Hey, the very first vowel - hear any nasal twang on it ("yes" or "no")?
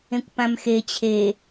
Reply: yes